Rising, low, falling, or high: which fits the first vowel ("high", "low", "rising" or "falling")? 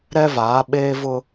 high